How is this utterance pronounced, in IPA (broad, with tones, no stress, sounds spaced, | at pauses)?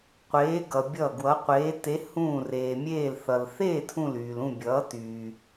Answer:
qʷ eː˩˧ ɡ ʌ˩ bʲ ʌ˧˩ ɡ w ʌ˩˧ qʷ eː˩˧ t e˩˧ h ũː˧˩ r eː˩ mʲ eː˧˩ l θ ʌ˩ l θ eː˥˨ tʰ ũ˧˩ l yː˩ l ũ˥˨ bʲ ʌː˩˧ t yː˩